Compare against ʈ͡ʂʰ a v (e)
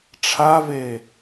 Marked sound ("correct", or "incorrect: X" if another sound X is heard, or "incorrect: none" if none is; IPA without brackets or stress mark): correct